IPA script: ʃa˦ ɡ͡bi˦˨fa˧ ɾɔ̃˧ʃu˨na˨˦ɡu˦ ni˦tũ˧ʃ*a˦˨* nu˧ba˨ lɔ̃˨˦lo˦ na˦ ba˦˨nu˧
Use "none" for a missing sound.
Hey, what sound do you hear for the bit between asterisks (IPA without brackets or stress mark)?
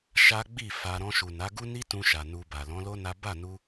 a˨